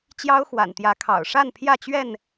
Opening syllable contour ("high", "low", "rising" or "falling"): high